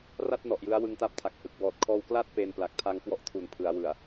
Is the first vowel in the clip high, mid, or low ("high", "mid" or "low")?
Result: low